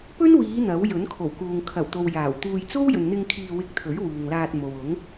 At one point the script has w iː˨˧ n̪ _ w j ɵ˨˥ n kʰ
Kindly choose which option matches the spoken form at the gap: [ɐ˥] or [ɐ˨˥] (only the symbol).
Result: ɐ˨˥